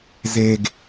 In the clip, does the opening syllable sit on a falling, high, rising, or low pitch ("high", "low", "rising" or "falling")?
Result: low